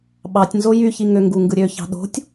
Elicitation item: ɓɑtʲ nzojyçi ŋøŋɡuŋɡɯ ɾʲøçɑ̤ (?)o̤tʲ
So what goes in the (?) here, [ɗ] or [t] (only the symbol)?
ɗ